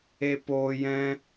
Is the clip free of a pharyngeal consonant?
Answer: yes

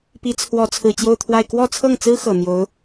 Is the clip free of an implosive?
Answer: yes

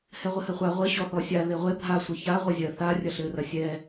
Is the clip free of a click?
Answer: yes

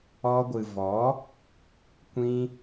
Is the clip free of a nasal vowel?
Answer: no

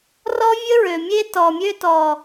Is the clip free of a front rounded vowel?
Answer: no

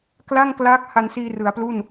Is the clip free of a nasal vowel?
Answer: yes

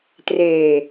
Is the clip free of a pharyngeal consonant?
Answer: yes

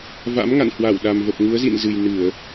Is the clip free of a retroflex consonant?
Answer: yes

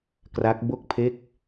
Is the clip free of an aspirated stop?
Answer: no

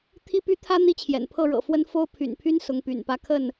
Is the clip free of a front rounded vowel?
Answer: no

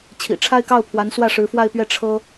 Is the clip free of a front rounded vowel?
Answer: yes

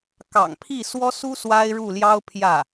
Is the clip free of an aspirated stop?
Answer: no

